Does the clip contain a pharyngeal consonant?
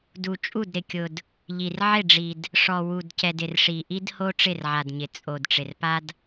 yes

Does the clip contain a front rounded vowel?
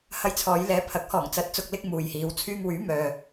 yes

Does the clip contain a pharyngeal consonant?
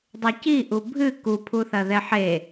yes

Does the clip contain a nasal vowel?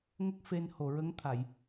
no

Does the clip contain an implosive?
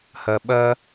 yes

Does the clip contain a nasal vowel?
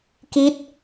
no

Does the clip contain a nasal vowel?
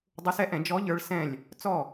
yes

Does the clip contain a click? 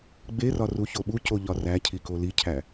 no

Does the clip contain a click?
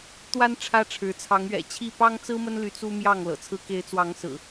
no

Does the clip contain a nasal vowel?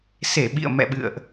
no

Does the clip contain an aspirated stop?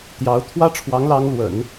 yes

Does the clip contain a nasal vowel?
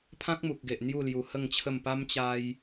yes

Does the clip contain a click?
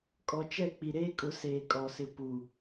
no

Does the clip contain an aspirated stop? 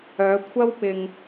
yes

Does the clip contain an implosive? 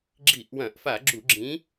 no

